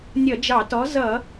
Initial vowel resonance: oral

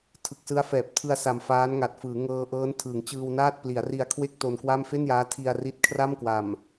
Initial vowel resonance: oral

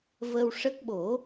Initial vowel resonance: oral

